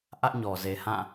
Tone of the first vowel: high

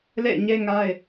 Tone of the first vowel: falling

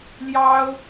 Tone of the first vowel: high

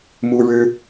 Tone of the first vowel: high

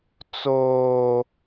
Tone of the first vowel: high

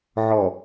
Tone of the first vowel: low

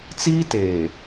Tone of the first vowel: high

